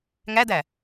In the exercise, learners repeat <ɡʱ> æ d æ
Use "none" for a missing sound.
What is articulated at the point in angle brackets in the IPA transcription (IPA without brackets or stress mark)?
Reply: ŋ